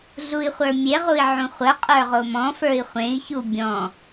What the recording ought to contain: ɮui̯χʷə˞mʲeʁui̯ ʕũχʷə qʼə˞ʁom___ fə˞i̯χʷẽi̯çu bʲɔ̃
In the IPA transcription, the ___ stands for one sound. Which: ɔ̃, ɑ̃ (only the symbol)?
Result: ɔ̃